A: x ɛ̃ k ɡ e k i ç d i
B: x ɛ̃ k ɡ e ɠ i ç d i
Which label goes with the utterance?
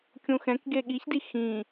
B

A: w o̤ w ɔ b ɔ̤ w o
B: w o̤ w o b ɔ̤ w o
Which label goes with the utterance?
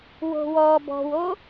A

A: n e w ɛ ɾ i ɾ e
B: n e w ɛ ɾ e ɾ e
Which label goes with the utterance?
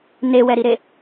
A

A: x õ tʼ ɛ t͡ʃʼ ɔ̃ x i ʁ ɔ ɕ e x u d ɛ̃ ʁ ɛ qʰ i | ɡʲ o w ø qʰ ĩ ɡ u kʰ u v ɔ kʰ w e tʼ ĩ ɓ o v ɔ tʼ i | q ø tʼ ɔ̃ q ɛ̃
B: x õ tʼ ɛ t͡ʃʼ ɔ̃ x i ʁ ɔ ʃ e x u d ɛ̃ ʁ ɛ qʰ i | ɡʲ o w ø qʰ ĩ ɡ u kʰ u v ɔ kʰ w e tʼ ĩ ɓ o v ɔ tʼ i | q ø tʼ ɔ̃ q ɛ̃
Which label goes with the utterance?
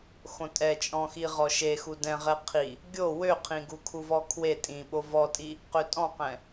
B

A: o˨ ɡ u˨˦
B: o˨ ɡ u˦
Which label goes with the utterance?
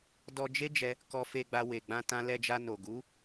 A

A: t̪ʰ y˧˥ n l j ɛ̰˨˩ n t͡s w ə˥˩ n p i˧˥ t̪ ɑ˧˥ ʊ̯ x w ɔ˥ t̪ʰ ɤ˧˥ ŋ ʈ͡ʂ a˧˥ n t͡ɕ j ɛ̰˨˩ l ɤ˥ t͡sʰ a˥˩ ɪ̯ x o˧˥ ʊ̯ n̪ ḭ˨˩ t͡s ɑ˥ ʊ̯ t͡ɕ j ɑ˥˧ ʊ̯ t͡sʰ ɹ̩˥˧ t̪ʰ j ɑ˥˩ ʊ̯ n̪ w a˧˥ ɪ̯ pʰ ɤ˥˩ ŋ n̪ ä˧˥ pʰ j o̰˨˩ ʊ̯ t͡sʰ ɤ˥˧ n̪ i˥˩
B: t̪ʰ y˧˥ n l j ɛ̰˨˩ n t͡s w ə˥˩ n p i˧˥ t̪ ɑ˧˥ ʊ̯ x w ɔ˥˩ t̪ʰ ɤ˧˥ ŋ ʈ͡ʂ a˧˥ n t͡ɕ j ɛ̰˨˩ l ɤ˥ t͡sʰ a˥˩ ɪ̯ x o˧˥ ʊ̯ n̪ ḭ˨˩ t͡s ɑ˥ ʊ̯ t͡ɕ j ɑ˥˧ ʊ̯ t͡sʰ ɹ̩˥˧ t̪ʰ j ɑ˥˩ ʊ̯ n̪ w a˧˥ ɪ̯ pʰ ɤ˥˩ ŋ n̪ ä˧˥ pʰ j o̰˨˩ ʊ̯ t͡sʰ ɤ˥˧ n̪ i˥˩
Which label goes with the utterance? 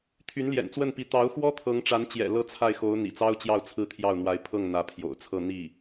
A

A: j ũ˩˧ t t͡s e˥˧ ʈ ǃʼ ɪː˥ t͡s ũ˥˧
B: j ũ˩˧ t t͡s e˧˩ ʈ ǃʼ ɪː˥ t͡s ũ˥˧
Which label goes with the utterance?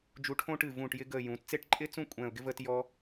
A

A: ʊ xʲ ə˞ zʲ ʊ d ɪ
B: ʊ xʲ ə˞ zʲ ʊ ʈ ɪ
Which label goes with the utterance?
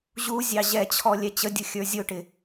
B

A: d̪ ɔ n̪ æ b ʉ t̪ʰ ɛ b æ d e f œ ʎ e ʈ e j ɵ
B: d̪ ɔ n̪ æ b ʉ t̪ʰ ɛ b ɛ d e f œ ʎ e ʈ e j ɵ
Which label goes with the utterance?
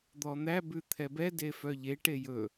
B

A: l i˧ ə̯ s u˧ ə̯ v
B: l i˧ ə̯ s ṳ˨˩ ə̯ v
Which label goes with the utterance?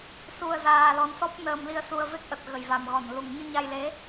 A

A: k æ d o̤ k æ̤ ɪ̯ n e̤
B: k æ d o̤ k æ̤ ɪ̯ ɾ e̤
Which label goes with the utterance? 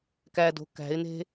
A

